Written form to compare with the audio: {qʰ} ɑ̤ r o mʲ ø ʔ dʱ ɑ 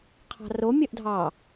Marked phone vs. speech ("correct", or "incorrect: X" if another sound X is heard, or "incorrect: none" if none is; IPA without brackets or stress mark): correct